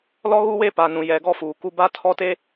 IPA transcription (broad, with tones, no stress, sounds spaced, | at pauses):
l ɔ˦ ɣ u˦ w e˦ p a˨ n ũ˨ j ɛ˨ ɡ ɔ˦ f uː˨ k u˦ b a˦ tʰ ɔ˦ t e˦